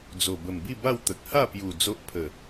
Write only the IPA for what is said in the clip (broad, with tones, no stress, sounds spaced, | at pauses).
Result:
d͡z o˨˩ b ə˨˩ m b i˥˧ b a˥˧ w t̪ ə˨ k̚ h a˥˧ p j u˨˩ d͡z o˦ ʔ pʰ ə˨˩